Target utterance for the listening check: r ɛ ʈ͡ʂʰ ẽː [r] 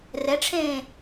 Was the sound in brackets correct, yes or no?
no